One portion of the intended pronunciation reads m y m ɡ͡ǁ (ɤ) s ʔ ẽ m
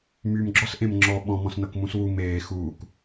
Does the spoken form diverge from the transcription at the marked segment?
yes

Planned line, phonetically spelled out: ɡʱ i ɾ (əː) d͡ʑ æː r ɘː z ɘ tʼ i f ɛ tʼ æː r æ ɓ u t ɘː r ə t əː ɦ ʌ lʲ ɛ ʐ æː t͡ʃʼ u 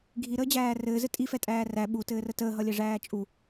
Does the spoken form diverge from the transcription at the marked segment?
no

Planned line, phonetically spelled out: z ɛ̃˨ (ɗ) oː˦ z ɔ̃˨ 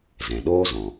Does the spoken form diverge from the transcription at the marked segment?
no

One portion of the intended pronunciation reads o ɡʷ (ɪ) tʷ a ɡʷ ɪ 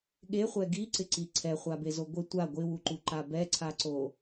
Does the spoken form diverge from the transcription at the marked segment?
no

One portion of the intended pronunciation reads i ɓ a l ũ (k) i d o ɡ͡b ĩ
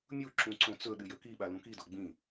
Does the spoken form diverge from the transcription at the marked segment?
no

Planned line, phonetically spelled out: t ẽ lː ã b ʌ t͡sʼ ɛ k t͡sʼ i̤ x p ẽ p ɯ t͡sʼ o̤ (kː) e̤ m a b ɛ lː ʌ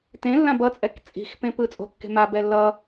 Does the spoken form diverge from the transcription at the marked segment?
no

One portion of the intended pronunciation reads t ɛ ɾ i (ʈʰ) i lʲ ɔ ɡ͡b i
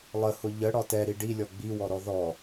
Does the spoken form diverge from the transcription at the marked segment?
yes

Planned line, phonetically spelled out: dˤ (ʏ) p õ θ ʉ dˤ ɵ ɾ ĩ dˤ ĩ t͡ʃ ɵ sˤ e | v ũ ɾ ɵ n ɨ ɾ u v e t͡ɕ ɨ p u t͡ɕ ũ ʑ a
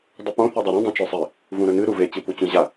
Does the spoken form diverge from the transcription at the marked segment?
yes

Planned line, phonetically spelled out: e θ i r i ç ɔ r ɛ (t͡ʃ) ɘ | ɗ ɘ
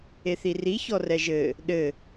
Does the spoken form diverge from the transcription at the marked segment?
yes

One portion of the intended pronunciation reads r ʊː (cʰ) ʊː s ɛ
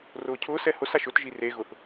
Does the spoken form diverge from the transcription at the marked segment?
no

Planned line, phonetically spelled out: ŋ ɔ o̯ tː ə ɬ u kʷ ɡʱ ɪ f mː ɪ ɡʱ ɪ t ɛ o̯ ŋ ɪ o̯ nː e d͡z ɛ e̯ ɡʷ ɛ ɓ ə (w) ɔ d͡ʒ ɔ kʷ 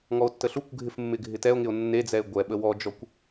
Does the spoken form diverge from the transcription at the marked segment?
no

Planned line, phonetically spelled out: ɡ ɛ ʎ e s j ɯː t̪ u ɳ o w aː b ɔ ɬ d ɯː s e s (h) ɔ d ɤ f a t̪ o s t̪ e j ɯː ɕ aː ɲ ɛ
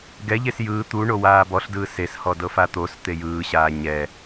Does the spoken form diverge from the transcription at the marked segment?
no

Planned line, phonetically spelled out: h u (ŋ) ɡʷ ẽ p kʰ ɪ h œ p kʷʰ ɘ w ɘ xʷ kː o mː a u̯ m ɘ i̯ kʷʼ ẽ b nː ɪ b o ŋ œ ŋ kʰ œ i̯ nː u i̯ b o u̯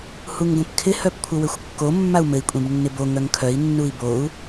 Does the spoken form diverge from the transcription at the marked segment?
no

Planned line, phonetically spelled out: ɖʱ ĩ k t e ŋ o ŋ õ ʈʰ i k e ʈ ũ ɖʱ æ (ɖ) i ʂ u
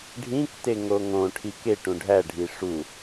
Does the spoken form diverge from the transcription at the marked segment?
yes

